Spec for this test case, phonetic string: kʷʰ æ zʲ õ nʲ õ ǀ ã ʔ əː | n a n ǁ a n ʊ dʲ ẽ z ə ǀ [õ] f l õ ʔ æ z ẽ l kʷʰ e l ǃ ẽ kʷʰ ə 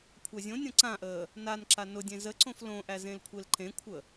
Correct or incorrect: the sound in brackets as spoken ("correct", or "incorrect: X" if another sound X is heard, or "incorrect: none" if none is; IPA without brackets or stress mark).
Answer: correct